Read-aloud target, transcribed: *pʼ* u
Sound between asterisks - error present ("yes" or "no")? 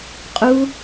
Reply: yes